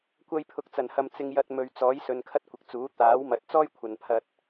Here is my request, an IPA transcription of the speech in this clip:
kʷ ɐ˧ j pʰ ʊ˨˥ k̚ t͡s ɐ˨˩ n h ɐ˨ m t͡s ɪ˧ ŋ j ɐ˧ t̚ m ɵ˨ ɥ t͡s ɔː˨˥ j s ɵ˨ n kʰ ɐ˥ t̚ kʷ ɪ˨˥ k̚ t͡s uː˨˥ t̪ aː˨˥ w m ɐ˨˥ t̚ t͡s ɔː˥ j kʷʰ ɐ˨ n pʰ ɐ˧ t̚

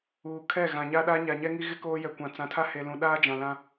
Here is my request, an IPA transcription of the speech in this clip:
uː˨ kʰ ɛ˦˨ ɣ ã˨ ɲ a˦ ɗ a˦ ɲ a˨ ɲ ɛ˦ ŋ i˦ ɣ ɪ˦ k oː˦ j ɛ˨ kʷ ã˨ t͡s ã˨ tʰ a˦ h e˨ l ũ˨ ɗ aː˦ d͡ʒ ã˨ l ã˦

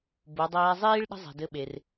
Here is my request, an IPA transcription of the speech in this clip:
b u˩˧ dˤ ɛː˧ zˤ iː˥ ɭ ɗ ə̤˥ zˤ i̤˩ d ɘ˧ ɓ e˩ r

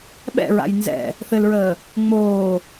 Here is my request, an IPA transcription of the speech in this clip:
ɓ ɛ̰ ɹ a̰ j n z ɛ̰ | θ ɘ l ɹ əː | ŋ͡m oː

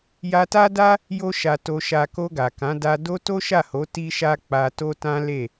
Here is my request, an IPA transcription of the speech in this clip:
j a˧ t a˦ d a˦ | j o˦ ʃ a˧ t o˧ ʃ a˧ k o˧ ɡ a˨ k ã˨˦ d a˧ d o˦ t o˦ ʃ a˦˨ h o˨˦ t i˦ ʃ a˦ k͡p a˧ t o˦ t ã˦ l e˦˨

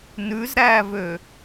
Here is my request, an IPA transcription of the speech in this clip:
n ʉ z ɾ æː v ø

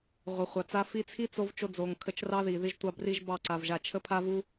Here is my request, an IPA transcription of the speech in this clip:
ʁʷ ə˨ χʷ a˨ t͡s a˧ f i˧ t͡sʰ i˦ t͡s o˧ v t͡ʃ o˧ d͡z o˨ ŋ kʰ ə˧ t͡ʃ r ɑ˦ ð i˨ ð i˧ ʒ tʷ ɑ˧ b r i˧ ʒ b ɑ˦˨ ǀ a˨ v ʒ a˨ t͡ʃʰ ə˧ pʰ a˧ v u˧

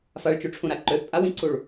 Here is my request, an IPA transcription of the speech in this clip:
f a ɭ t͡ʃ u ʈ͡ʂʰ ũ ɾ a ǃ ø θ pʼ a w ĩ ǀ u ɭ

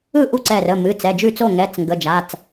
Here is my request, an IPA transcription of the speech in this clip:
ɯ˥˩ ʔ u˥˩ ǀ ɛ˧˩ r ə˩˧˩ m ɨ˩˧˩ t͡s ɛ˩˧˩ d͡ʒ ʉ˥˩ t͡s o˥˩ ŋ ɛ˩˧˩ t͡s ŋ ɡ ə˩˧˩ d͡ʒ a˩˧˩ t͡s

